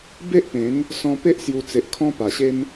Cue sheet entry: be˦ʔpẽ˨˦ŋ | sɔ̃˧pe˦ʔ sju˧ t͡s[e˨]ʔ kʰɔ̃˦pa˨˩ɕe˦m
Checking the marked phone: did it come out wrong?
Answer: no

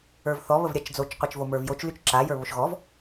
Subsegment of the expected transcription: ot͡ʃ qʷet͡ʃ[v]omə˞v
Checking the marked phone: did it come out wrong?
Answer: no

